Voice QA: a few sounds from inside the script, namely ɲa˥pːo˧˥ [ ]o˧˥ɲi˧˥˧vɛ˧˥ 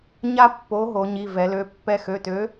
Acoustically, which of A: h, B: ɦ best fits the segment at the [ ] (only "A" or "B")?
B